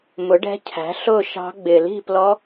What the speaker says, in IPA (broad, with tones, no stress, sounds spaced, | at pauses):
m ʊ˩˥ ɖ ɛ̤˧˥ cʰ æ̤˩˥ ɬ ʊ˥˨ ʃ ɑ̤˧˥ ɡ͡b ɪ˨˩ l i̤˥˨ p l ɔ˧˥